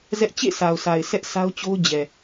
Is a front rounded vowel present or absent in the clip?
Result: absent